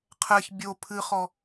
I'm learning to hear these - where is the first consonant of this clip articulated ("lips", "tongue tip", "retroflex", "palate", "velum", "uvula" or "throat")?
uvula